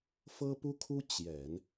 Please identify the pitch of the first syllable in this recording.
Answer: high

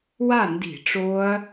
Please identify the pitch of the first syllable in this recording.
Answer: falling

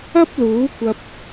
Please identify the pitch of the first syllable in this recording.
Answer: high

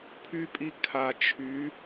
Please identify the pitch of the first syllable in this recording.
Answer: high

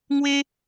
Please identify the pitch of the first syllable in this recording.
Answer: high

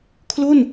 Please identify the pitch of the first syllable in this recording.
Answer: falling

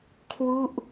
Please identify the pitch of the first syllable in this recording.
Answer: falling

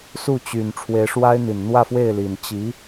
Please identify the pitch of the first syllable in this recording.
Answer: falling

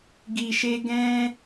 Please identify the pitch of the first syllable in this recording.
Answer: low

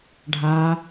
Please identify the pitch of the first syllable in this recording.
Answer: low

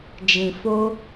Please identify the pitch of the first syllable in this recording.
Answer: low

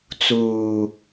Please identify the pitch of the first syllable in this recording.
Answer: low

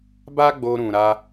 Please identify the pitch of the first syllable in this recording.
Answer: high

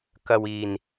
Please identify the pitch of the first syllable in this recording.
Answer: low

